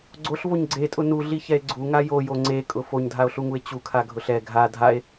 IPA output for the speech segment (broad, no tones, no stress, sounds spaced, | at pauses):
ɡ͡ǀ o ɬ v o ɲ ɡ͡ǀ e tʼ ʊ n u ɮ i ç ɛ e̯ ɡ͡ǀ u ŋ a j o j o ŋ͡ǀ e kʼ ʊ f o ɲ dʱ a o̯ ɬ u ŋ u e̯ t͡ɕ u kʰ a ɡʱ ʊ ɬ ɛ ɡʱ a dʱ a e̯